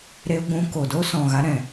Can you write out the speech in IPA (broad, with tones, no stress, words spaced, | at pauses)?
ɾe˧ ɡʷũ˧ ko˨ do˦sɔ̃˨ɣa˧ɾɛ̃˨